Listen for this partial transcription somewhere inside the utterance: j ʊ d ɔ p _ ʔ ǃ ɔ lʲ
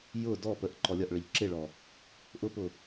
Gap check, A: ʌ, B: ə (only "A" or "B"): B